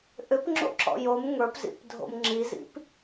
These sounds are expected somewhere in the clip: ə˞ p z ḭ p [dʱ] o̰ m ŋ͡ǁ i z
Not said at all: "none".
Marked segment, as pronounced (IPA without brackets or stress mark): dʱ